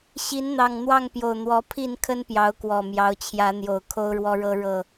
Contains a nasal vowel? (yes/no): no